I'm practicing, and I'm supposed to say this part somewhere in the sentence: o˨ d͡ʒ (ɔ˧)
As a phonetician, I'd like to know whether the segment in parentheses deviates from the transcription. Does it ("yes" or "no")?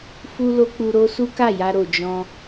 yes